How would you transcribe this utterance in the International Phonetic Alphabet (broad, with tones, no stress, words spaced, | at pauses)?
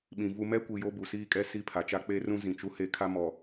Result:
ɓĩ˨vu˦ mɛ˦kʷi˨ jo˦bu˨siː˦kʼɛ˦ si˦pʰa˨t͡ʃa˦ k͡pe˦rũ˦ zĩ˨t͡ʃu˦he˦ kʰa˦mɔ˨